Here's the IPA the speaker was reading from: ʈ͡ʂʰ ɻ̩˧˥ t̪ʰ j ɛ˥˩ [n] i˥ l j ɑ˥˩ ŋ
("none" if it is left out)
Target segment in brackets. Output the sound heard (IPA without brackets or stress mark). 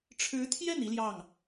n